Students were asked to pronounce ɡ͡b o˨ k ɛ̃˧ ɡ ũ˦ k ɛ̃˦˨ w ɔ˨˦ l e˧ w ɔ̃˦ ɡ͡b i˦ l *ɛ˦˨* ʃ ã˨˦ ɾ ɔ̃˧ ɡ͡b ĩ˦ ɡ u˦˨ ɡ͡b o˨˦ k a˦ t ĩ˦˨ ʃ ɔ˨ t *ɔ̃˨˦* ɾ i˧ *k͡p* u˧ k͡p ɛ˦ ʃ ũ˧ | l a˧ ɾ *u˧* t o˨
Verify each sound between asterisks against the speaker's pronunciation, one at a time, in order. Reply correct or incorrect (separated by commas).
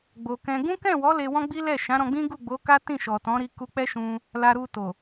correct, correct, incorrect, correct